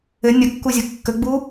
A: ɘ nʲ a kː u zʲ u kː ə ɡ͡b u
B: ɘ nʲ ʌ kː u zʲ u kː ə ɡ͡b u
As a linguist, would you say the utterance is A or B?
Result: B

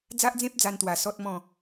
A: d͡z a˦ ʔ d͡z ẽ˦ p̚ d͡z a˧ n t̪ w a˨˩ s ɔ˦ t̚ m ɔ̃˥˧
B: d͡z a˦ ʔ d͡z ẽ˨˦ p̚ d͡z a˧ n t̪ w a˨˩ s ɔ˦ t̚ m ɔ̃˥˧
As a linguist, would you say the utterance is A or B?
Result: A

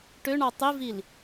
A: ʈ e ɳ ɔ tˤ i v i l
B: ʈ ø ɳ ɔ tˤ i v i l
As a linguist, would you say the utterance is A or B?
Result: B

